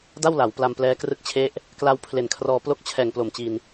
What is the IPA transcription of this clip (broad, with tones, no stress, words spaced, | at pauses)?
da˥˩wla˩˦wpla˧m plɛː˦˥krɯ˥˩k̚t͡ɕʰe˥˩ʔ | kla˧wpʰle˨˩nkʰrɔː˧ plo˥˩k̚ t͡ɕʰɛː˨˩ŋplo˨˩mt͡ɕi˧n